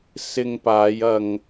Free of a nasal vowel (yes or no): yes